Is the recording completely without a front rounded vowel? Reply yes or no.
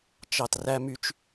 no